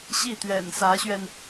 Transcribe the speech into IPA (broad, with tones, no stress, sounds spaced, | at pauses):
ɕ i˥˩ t̪ ɥ ɛ̰˨˩ n s ä˧˥ ɕ ɥ ɛ˧ n